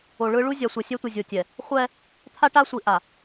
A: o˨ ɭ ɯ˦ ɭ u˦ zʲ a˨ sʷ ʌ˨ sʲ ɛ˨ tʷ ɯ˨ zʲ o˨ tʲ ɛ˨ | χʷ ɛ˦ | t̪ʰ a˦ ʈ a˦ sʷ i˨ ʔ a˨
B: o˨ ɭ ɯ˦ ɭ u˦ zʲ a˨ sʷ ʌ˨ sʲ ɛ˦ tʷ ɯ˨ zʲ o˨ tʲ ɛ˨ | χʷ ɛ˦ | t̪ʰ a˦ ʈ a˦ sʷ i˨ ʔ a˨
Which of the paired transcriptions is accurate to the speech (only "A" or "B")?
B